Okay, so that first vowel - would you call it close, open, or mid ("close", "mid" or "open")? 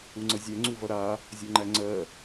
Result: close